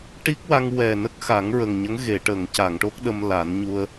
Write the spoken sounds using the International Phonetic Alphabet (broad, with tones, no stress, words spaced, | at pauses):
ʈi˦˥k̚wa˧ŋwɛ˨˩nə˦˥k̚ xa˨˩˦ŋɹə˨˩ŋɲə˧˥ŋ ɣe˨˩˨ʈəː˨˩˨ŋca˨˩˨ŋʈo˦˥k̚ ɗə˧mla˨˩˦n ɲu˧ə̯